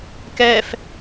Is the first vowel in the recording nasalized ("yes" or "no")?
no